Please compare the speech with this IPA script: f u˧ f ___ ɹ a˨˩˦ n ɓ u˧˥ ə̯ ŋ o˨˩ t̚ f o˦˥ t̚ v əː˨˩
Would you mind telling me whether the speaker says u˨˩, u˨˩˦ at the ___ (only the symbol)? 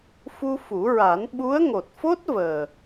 u˨˩˦